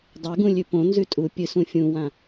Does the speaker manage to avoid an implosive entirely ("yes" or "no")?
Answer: yes